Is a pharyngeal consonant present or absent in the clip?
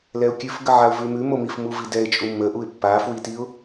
present